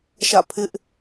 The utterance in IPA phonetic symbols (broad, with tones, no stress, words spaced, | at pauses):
ʃä̰˦˨ pʰɪ˦ʔ